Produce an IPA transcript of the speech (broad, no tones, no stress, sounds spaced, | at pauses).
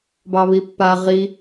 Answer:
b ɑ β i pː a ʁ i